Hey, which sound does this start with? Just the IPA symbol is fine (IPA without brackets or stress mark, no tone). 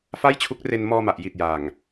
f